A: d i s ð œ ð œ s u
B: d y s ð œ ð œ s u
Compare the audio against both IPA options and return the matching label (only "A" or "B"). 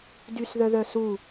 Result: B